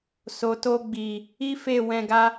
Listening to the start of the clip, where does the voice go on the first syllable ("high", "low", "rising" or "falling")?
low